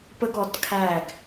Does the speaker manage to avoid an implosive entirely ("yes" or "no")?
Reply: yes